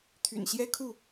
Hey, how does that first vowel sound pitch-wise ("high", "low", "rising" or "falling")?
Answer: low